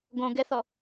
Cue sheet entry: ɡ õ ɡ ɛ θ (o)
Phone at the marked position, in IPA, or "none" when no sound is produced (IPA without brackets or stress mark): ɔ